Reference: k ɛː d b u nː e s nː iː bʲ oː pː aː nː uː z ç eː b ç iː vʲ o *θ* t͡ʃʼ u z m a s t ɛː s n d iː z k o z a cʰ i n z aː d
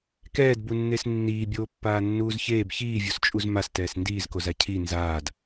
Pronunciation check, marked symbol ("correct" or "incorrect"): incorrect